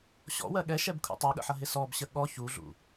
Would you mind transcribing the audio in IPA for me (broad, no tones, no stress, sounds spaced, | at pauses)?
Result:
ɕ ɔ̰ w ɜ ɠ ɛ ʃ ɛ b kʰ ṵ tˤ ʌ ɠ ə̰ ħ ʌ ɦ ɪ s ɔ b ɕ ə ɠ ɔ ç u ɮ ṵ